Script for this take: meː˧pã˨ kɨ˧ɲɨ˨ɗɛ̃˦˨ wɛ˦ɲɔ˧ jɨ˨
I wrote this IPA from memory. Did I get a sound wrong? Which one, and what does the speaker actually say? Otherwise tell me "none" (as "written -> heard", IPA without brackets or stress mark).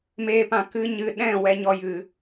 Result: none